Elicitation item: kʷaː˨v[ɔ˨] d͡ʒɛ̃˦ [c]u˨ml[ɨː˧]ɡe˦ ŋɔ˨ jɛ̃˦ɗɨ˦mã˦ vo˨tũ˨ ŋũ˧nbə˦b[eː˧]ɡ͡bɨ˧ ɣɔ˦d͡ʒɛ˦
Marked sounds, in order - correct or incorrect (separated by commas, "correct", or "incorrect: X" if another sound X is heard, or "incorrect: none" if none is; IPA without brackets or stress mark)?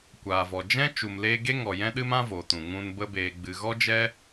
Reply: correct, incorrect: t͡ʃ, incorrect: eː˧, correct